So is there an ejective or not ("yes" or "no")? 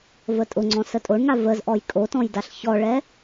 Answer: yes